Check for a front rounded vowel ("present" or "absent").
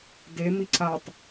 absent